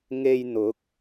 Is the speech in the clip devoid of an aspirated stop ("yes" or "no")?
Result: yes